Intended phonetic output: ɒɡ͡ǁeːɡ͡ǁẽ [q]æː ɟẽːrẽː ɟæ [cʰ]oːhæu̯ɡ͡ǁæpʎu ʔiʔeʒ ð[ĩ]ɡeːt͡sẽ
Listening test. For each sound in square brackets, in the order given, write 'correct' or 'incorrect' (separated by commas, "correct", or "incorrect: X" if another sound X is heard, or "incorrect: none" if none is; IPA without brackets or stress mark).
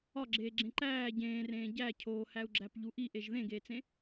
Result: incorrect: ǃ, correct, incorrect: ẽ